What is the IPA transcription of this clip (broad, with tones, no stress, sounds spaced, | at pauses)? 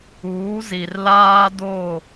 uː˨˦ z i˨ r l aː˦ d o˦˨